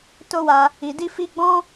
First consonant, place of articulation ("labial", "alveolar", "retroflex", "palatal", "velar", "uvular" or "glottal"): alveolar